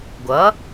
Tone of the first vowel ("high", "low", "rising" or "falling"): rising